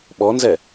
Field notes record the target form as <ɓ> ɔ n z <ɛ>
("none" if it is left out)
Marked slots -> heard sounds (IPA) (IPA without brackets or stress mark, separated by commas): ɓ, ɛ